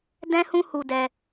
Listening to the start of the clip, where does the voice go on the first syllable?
high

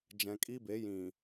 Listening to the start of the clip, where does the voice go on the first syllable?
low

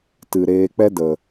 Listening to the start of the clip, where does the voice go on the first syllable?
low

